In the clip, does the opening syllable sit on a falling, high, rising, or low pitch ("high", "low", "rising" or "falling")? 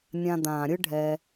low